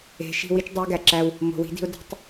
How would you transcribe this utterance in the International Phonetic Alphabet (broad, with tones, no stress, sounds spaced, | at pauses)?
e̤˨ ʃ i̤˦˨ w i˦ t͡ʃ dˤ o˦ ɪ̯ ɡ æ˨ ǁ æ˦ w | m o̤˨ w i̤˦ d i̤˦ ʊ̯ d i̤˦ tˤ